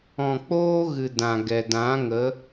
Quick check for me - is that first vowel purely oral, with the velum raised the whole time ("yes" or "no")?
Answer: no